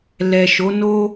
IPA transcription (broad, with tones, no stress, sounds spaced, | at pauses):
l ɛ˨ ʃ o˨˦ n o˦